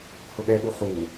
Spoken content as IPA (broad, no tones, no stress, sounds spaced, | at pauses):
h ʊ ɠ ɛ ɠ u χ u